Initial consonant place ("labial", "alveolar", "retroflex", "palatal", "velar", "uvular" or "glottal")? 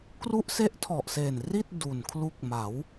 velar